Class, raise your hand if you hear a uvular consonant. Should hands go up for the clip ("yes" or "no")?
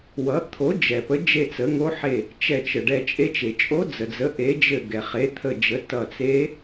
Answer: yes